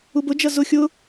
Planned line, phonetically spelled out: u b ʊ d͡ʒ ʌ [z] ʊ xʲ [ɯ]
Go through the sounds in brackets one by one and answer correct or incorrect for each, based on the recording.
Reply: correct, incorrect

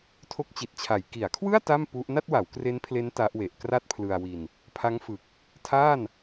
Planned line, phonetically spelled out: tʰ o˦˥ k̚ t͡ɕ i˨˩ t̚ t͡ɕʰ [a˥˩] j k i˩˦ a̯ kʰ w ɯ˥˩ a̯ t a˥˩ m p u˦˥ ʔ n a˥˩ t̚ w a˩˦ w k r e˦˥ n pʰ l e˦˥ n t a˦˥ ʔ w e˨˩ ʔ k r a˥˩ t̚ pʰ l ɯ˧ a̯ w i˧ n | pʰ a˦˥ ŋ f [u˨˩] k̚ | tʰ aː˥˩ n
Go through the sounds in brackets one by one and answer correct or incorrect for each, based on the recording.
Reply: incorrect, incorrect

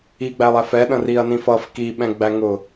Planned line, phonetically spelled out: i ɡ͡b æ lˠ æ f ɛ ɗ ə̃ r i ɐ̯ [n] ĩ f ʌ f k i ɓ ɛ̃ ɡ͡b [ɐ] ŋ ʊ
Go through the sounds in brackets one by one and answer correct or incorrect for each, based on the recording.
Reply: correct, incorrect

